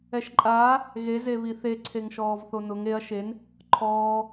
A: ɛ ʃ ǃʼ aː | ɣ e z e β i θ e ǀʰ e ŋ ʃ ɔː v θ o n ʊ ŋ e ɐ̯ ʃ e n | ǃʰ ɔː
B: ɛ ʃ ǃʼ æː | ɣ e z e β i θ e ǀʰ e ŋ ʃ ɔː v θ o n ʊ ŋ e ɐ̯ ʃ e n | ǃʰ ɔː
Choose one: A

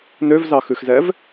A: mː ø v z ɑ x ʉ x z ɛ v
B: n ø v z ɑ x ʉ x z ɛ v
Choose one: B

